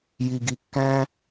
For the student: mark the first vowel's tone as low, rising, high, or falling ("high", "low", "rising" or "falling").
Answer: low